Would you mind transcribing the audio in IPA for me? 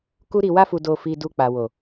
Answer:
k u˧ ɾ i˨ w a˧ f u˨ d o˨ f i˨ d u˧ k͡p a˨ w o˨

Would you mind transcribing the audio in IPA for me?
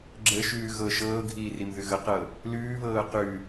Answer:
ɡ͡ǁ ə ʃ ʉː ɣ ɤ ʃ ɤː ɡʱ iː r i m ð ʉ ɣ ə q ɤ | l ʉː β ɤː q ʉ

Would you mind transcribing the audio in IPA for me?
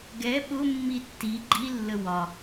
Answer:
ɡ ɛ ɓ ʊ mː i tː i ɡ͡ǃ i lː ə w ɒ

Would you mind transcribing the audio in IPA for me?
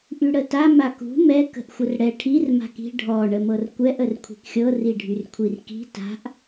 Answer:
ʔ y ɽ ə t a m a k ṳ m ɛ k ə̤ ʔ xʷ ə r ɽ ɛ ʈʰ i r m a̤ k i̤ ɖʱ ɔ ɳ ə m ɤ r kʷ ɛ ʔ ə r kʷʰ i̤ k xʲ ɤ r i ɖʱ y r kʷʰ i r k i̤ t a̤ ʔ

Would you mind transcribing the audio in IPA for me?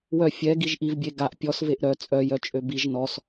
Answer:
w œ fʲ ɛ ɡ i ʒ ʔ i v bʲ e ɡ a ʔ pʲ ɔ s v e ʔ ɾ œ t͡sʼ œ j œ t͡ʃʼ ø b i ʒ n ɔ s

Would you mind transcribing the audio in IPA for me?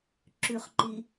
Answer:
ǁ ʉ χ ǃ i

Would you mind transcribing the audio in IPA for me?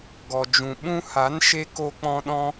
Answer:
ɡ ɔ˨ d͡ʒ ũ˨ ɓ ũ˧ h a˨˦ n ʃ e˧ k o˧ k͡p ɔ̃˧ ɗ ɔ̃˧

